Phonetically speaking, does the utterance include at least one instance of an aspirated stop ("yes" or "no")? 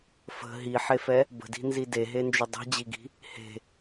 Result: no